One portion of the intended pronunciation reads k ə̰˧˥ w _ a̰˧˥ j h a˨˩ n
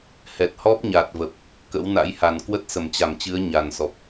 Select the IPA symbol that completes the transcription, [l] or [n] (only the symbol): n